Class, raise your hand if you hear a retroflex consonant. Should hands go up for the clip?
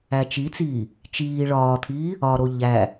yes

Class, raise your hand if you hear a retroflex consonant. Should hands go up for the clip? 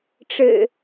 yes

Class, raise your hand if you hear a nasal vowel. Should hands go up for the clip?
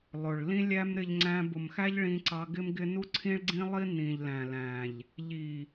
yes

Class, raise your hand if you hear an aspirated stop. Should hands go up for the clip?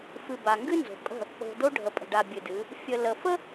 no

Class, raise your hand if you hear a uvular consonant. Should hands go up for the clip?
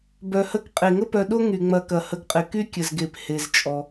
yes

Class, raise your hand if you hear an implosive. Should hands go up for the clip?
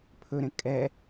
no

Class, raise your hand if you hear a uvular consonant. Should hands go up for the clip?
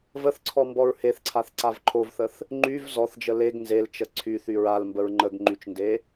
no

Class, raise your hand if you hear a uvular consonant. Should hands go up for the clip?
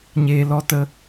no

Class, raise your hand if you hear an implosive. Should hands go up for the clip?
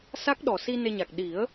yes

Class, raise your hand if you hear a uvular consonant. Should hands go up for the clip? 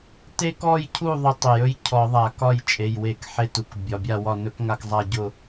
no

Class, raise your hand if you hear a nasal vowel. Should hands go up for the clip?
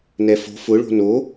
no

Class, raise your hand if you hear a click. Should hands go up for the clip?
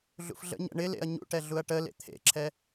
yes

